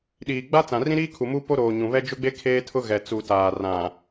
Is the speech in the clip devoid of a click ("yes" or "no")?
yes